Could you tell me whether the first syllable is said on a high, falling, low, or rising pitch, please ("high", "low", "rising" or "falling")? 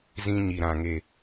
high